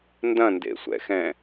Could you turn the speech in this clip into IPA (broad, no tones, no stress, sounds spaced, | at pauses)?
n d ɐ̃ n d ḛ sʷ ɛ̰ x ɛ̃